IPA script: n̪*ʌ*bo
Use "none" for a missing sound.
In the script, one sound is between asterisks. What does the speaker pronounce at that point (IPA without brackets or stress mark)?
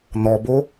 ɔ